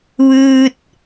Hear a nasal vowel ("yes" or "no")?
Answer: no